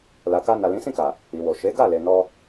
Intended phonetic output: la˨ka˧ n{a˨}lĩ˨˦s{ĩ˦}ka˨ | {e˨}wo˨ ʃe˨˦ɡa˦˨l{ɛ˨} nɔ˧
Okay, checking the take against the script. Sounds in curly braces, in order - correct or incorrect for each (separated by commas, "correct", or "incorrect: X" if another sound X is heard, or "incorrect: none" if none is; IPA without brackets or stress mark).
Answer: correct, incorrect: ĩ˦˨, incorrect: i˨, incorrect: e˨